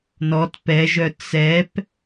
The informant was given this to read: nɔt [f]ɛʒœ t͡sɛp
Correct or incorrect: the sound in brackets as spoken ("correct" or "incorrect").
incorrect